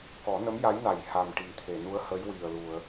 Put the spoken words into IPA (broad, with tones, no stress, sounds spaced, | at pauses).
k ɔ˨˩˦ n ə˧˥ m j a˧˥ j n a˨˩ j h a˨˩ m ʈ i˨˩˨ t̪ʰ e˨˩˨ n u˧˥ ə̯ h ə˧˥ j w i˨˩ ə̯ l u˨˩˨ ə̯